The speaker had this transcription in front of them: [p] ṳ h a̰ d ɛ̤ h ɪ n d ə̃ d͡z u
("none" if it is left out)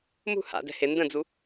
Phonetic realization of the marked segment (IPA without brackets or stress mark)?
m